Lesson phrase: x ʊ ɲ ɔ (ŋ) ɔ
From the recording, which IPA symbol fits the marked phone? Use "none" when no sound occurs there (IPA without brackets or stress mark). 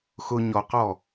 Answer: q